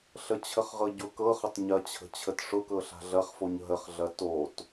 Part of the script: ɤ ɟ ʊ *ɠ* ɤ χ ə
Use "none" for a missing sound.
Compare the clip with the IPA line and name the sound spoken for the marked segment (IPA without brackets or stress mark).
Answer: k